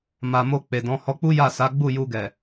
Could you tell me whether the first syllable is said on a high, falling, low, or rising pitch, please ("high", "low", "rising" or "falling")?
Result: low